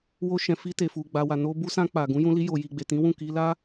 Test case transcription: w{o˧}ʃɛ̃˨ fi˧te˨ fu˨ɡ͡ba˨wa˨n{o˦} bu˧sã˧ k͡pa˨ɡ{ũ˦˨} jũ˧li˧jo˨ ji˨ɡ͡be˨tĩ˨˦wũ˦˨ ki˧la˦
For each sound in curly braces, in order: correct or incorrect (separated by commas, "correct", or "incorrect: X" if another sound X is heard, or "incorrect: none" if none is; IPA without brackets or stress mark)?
correct, incorrect: o˧, incorrect: ũ˨˦